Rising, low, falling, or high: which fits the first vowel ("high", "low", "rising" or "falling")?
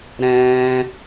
high